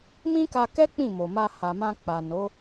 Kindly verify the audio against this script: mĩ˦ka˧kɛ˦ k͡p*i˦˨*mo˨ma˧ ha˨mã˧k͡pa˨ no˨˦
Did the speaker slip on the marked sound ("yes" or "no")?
yes